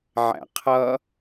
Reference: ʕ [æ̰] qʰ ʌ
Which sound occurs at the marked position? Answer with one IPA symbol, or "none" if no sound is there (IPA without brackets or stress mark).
æ̰